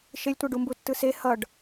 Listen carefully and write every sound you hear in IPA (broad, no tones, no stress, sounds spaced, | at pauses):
ʃ e lʲ tʷ ɛ ɖ u m b u tː ɯ s e h ʌ ɖ